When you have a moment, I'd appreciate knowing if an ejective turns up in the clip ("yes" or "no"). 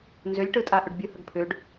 yes